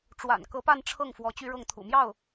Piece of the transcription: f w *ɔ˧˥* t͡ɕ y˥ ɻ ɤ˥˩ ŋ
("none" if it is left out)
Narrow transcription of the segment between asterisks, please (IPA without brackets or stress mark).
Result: ɔ˧˥